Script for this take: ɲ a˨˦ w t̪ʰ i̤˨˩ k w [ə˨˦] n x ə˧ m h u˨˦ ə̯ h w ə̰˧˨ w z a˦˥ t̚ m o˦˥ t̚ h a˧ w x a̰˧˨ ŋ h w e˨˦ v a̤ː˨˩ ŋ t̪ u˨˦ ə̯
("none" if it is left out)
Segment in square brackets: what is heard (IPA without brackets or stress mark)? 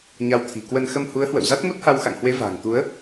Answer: ə˧